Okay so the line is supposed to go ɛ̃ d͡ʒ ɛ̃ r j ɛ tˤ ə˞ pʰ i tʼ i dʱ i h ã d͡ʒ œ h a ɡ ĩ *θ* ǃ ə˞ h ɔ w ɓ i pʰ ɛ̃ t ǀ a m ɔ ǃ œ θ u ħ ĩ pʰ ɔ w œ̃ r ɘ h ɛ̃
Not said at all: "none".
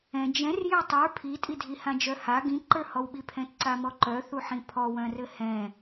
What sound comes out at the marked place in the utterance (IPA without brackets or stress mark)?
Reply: none